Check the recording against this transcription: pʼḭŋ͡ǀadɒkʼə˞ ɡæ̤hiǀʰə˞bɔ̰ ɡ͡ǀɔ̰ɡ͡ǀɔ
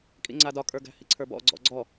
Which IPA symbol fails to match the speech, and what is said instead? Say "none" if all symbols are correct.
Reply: pʼ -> kʼ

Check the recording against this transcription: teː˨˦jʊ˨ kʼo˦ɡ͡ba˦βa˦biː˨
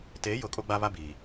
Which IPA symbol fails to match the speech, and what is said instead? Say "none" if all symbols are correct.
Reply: none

